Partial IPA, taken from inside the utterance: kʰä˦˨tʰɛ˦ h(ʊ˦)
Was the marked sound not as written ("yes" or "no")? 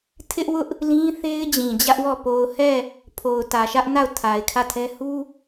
yes